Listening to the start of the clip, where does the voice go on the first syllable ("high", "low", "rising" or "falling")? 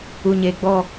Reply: low